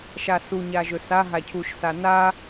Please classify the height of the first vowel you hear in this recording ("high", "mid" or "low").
low